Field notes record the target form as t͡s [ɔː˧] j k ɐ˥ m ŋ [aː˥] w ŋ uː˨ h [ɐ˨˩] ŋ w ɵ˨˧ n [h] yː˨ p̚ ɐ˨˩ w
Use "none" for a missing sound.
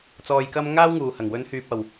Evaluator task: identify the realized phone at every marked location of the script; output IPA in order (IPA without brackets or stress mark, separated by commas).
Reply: ɔː˧, aː˥, ɐ˨˩, h